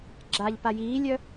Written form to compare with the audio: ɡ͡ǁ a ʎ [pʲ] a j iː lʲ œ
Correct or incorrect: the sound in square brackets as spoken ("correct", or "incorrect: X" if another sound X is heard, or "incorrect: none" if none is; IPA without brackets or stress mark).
incorrect: p